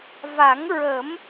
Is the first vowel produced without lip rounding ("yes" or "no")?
yes